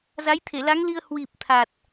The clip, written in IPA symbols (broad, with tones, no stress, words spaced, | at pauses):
za˨˦jt̪ʰe˧˩la˨˦ŋli˧ə̯ hwi˨˩p̚ t̪ʰa˨˩t̚